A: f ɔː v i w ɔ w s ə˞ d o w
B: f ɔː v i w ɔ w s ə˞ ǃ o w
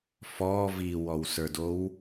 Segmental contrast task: A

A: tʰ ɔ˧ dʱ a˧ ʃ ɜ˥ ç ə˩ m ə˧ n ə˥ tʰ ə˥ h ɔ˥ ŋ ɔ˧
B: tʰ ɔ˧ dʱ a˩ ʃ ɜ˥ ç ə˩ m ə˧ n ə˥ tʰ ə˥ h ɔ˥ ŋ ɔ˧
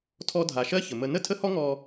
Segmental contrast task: B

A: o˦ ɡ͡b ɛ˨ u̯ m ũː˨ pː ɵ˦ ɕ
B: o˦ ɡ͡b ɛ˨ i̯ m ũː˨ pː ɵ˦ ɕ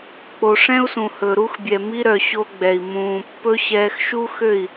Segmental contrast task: B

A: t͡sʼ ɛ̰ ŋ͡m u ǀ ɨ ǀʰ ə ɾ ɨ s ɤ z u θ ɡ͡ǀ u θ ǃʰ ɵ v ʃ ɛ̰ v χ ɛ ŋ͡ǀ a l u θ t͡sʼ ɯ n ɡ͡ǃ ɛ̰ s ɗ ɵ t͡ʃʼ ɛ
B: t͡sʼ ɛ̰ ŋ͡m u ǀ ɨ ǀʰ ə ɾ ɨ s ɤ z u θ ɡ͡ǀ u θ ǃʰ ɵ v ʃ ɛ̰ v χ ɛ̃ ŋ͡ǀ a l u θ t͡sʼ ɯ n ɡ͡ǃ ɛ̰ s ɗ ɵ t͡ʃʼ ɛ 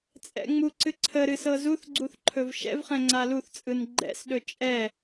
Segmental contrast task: B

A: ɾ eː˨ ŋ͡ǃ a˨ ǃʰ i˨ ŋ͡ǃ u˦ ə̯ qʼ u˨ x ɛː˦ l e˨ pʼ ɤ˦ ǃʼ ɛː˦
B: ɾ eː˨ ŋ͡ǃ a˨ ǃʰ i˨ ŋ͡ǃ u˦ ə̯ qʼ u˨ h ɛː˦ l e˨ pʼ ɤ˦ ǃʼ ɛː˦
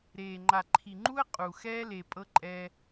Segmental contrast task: A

